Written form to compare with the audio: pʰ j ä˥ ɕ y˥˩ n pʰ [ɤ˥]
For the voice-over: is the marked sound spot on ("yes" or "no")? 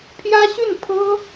yes